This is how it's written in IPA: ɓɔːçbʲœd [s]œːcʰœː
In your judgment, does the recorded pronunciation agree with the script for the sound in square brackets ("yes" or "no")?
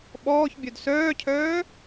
yes